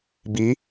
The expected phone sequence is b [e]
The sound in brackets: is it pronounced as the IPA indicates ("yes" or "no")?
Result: no